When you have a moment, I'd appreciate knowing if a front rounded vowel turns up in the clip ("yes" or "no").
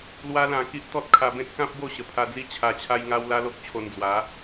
no